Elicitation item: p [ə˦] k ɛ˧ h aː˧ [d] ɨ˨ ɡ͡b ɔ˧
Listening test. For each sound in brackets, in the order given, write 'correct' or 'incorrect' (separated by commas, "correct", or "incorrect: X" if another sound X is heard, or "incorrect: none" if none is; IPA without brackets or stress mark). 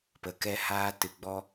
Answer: incorrect: ə˨, incorrect: t